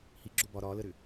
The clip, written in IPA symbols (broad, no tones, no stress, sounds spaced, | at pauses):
h i ɡ͡ǁ o b ɒ ɾ ɒ l ə ɾ ʏ